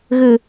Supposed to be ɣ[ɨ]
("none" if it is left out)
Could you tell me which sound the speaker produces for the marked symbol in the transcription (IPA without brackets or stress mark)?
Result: ɨ